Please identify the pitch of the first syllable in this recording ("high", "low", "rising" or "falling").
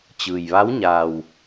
low